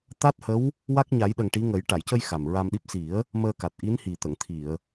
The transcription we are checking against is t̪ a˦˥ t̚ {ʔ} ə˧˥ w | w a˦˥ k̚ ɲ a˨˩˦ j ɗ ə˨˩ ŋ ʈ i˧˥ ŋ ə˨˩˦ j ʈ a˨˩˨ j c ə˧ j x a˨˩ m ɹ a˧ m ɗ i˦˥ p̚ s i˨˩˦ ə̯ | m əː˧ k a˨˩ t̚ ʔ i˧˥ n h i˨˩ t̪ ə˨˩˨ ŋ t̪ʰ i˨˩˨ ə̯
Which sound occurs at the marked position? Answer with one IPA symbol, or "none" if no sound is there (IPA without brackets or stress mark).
h